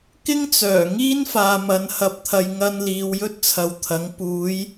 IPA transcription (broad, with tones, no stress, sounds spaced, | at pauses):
k ɪ˥ ŋ t͡s œː˨˩ ŋ iː˥ n f aː˨ m ɐ˨ n h ɐ˧ p̚ t̪ʰ ɐ˧ j ŋ ɐ˧ n l iː˨ w j ɵ˥ t̚ t͡sʰ ɐ˨ w t̪ʰ ɐ˨˥ ŋ p uː˨˧ j